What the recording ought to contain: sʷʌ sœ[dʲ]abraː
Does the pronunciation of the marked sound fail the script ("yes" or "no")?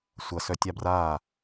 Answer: yes